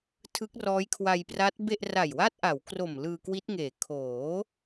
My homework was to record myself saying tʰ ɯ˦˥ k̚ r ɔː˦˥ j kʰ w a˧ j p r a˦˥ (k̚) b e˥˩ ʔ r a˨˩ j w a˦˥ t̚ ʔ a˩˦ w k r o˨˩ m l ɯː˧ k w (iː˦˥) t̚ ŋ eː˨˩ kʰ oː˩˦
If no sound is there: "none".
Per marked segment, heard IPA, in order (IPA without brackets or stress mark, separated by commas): t̚, i˦˥